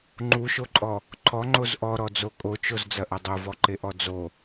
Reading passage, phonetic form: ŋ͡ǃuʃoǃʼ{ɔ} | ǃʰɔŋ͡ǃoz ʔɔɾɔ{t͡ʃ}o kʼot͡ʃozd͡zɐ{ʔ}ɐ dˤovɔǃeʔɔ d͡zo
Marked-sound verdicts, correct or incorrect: correct, incorrect, correct

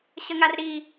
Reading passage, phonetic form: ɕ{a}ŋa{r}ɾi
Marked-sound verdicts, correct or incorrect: incorrect, correct

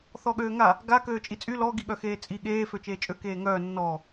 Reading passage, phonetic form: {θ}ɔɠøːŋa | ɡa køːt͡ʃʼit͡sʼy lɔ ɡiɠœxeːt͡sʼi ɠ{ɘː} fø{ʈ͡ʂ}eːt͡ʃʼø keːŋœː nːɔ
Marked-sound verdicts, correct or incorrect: correct, incorrect, incorrect

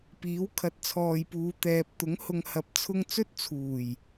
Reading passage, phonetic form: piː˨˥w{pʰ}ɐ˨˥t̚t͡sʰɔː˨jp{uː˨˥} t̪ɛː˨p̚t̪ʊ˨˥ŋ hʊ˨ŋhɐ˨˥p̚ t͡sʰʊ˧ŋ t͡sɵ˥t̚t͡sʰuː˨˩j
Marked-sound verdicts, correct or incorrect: incorrect, incorrect

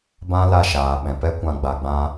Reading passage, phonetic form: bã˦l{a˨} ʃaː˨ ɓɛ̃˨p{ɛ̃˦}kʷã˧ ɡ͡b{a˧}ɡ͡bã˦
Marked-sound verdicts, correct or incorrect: incorrect, incorrect, correct

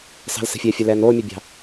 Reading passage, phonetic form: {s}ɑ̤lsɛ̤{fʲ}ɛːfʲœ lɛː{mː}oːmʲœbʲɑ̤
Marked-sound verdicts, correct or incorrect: correct, correct, incorrect

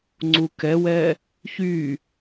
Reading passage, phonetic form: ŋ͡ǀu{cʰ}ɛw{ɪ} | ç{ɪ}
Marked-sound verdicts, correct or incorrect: incorrect, incorrect, incorrect

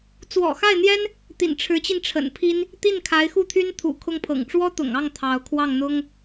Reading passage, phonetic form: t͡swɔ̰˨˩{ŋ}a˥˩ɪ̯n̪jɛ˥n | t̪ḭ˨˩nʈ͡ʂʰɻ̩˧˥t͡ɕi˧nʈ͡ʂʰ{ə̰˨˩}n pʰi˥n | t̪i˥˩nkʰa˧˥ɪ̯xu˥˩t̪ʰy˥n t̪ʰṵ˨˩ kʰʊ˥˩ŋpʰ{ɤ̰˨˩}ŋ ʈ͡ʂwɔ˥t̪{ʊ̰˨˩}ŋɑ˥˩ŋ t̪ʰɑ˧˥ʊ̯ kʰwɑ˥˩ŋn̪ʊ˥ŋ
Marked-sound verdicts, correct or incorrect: incorrect, correct, correct, correct

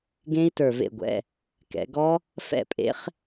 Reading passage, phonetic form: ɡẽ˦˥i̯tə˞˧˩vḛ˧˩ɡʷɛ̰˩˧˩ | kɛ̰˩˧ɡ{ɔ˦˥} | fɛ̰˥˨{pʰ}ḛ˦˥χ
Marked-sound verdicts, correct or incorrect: correct, incorrect

